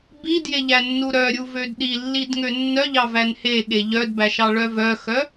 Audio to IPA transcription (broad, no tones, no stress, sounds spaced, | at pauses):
b i d j e ʎ æ nː u ɾ œ ɾʲ u v ø d ɗ i lː i d ŋ ø nː œ ʎ ɑ v æ n h e ɠ e ʎ œ d b æ ʃ ɑ ɭ œ v œ x œ